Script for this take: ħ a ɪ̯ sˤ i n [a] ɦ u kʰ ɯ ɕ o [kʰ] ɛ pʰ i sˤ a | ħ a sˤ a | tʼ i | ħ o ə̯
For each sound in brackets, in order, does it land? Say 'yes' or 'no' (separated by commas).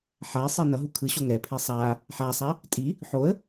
no, no